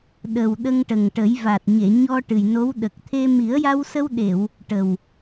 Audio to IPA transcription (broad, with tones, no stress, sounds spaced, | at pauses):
ɗ ə˨˩ w ɗ ə˧ ŋ ʈ ə˨˩ ŋ ʈ ə˨˩˦ j v a˨˩ t̚ ɲ e˨˩˨ ɲ ɔ˧ ʈ ɨ˨˩ j n o˧˥ w ɗ ə˨˩ k̚ t̪ʰ e˧ m i˨˩˦ ə̯ j a˧ w s ə˧ w ɗ e˨˩˨ w | ʈ ə˨˩ w